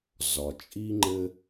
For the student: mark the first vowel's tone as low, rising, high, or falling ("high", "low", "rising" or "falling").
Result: low